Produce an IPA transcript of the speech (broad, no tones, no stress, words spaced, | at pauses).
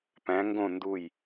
pæ̃ ŋɡõ nduj